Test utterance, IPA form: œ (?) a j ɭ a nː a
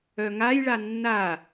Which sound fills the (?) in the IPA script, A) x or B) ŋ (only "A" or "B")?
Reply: B